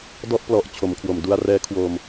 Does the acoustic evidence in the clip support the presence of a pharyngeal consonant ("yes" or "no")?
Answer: no